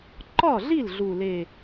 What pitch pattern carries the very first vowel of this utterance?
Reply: falling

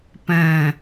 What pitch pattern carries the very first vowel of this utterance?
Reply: low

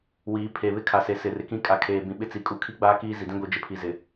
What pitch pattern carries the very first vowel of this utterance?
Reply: rising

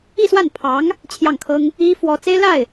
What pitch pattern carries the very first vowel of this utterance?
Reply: falling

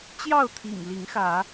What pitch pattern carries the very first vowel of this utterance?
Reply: falling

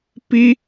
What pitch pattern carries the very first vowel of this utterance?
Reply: high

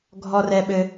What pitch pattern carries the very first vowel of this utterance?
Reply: low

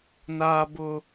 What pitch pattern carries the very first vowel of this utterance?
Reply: high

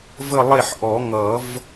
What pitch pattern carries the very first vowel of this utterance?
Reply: falling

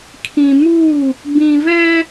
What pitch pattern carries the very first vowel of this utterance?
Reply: low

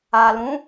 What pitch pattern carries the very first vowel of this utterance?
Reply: low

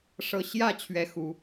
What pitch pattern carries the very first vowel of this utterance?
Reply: falling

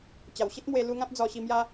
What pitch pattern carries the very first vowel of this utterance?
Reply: low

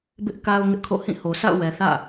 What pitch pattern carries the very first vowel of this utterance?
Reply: high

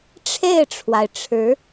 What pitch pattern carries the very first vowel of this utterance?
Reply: falling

